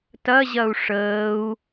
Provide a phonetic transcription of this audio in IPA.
t ɐ ʑ ɐ u̯ ʂ əː u̯

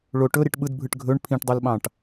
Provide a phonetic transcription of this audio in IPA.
ɭ o ʈ ɵ ɾ i ʈ ɓ ɯ d bʱ ɯ ʈ ɡʱ ɵ ɳ pʰ ĩ ʈ dˤ o l ɓ ɑ̃ ʈ

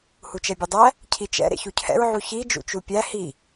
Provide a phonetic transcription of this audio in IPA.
h u t͡ʃ ɛ bʲ u dˤ æ | cʰ i t͡ʃ ɛ̰ ɾ ḛ ç u cʰ ɛ̰ ɹ ʕ u ç i d͡ʒ ṵ t͡ʃ u pʲ æ h i

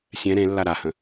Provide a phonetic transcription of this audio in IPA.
sʲ ɛ̃ ɾ ẽ lː a ɾ a h ə̃

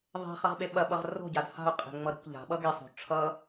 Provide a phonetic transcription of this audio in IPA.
ðˤ e̤ χ ɐ ʁ ɓ e ɓ ɐ ɓ ʌ ʁ r o̤ ɟ a d h a̤ ʊ̯ qʼ e̤ ŋ͡m ʌ ɾ o̤ k ʎ a̤ ɓ ʌ ɡ e sˤ o̤ ʈ͡ʂʰ ʌ

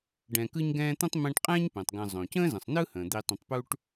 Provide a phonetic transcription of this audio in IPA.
ɖ ɛ̃˨ k ɯ˦ ɲ ɡ ɛ̃ː˦ t̪ ə̃˥ tˤ m ɛ̃˦ ʈ qʼ ɛ̃ː˥ ɲ p ɛ̃˩ tˤ ɡ ə̃ː˨ zˤ õ˩ c ə̃ː˥ z ə̃˩ sˤ n ɯ˥ h ə̃ː˩ d̪ i˨ tˤ ə̃˨ tˤ p u˦ ʈ

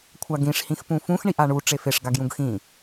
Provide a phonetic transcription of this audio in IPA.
kʷʰ a ɡ ĩ ʂ h ĩ x p ũ f ũ x ɳ i ʔ a ɳ u ʈ͡ʂ e f e ʂ ɡ a ɡ j ũ ɡ x ĩ

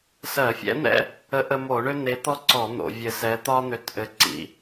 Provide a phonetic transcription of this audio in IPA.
s ɜ˧˩˧ fʲ ɛ̰˧˥ n̪ ɛ̰˥ | ə˧˥ ʔ ə˧ m o˧˩˧ ɳ ø˥ n̪ e˧˥ t̪ ɔ˥ ǀ ɔ˧˩˧ n̪ o̰˧˩˧ vʲ ɘ˧ s ɛ˧˥ t̪ ɒ˥ n̪ ø˧ t ʔ ɘ˧˥ ǀ ḭ˧

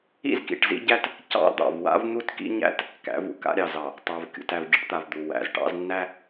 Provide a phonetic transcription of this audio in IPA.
ḭ˦ z k ḭ˨ ʈ z ḭ˦ ɟ æ˦ t | c ɑ̰˦ d̪ ɑ̰˨ v w a̰˦ v n̪ u˦ t k ḭ˦ ɲ æ̰˦ t | k æ̰˨˦ v ṵ˨ k a̰˦ ɾʲ ɑ˨ z ɑ˨ | tˤ æ˨ v kʲ ṵ˨ t æ˨ v ɟ ḭ˦ ʈ t̪ a˨ v d̪ u˨ w æ̰˨ z ʈ ɑ̰˦ z nː æ˦

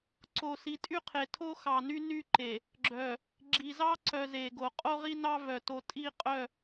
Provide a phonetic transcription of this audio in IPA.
ǀ o˨ s i˨ tʼ y˦ qʰ e˨ tʰ o˦ x ɑ˨ n y˦ n y˦ ǃ e˨ | ɡ͡ǁ œ˨ | ɡ͡ǁ i˨ z ɑ˦ ǀ œ˨ z e˨ ɡ o˨ qʼ o˦ ʁ i˦ n ɑ˦ v œ˨ t o˨ tʼ i˦˨ qʼ œ˦˨

